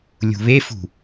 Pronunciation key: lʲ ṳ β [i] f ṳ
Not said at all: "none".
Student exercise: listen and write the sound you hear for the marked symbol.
e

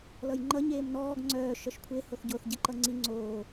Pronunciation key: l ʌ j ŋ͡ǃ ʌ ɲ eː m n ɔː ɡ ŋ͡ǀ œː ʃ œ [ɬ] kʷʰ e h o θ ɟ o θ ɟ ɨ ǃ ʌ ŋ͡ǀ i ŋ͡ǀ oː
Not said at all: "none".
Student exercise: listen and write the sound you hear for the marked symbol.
ʃ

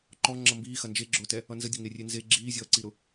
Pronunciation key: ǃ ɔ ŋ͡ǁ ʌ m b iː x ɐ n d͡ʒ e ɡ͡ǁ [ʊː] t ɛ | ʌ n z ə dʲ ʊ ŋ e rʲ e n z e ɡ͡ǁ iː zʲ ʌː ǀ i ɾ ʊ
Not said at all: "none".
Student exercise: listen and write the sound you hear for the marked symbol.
ʊː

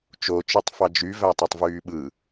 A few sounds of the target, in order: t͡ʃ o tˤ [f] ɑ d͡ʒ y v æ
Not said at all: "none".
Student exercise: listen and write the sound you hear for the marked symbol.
f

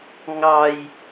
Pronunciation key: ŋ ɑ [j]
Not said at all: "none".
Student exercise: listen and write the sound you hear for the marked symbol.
j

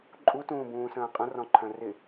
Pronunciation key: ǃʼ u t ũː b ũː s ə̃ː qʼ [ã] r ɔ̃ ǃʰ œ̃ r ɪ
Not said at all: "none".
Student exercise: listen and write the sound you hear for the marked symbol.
ə̃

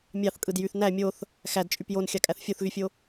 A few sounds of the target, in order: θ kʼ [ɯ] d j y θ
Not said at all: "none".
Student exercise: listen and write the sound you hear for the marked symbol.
ɯ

